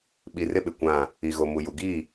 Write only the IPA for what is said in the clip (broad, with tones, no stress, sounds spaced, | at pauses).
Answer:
ɓ i˨ r ɪ˦ ɓ ɪ˨ kʷ ã˦˨ | i˨ ɣ o˨ m u˨ j u˨ ɡ iː˦˨